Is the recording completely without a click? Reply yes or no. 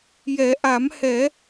yes